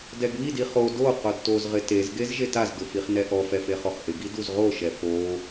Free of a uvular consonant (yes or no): no